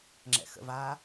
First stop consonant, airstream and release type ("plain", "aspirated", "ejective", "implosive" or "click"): click